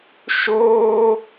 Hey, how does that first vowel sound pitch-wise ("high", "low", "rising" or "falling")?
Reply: high